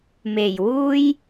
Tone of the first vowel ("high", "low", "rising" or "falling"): low